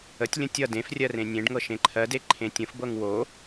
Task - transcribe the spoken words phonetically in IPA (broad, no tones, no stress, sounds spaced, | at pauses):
ə tʲ lʲ ə̃ tʲ ʌ d ẽ f rʲ ɜ r ẽ nʲ ẽ ɖ ŋ ɤ ʃ ẽ ǃʰ ɜ d e ǃʰ ẽ tʲ ə̃ f b ɤ ŋ w o